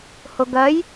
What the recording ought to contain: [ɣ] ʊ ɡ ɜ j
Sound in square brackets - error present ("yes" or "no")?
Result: yes